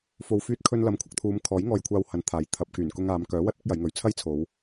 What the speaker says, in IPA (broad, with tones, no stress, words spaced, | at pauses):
fo˨wfyː˧t̚kʰɵ˧n lɐ˨˥mkʷʰɐ˧k̚t̪ʰuː˨˧mkʰɔː˨˥j ŋɔː˧jkʷʰaː˧whɐ˨˥nt̪ʰaː˨˥j t̪ʰɐ˨p̚ kyː˨˩nkʊ˧ŋaː˨˧m kœː˨˥wɐ˧t̚ ɪ˨˥k̚jɐ˨˧jŋɵ˨ɥ t͡sʰɐ˥jt͡sʰo˨˧w